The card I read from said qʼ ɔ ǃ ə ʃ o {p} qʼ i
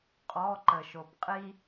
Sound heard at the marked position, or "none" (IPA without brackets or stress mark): p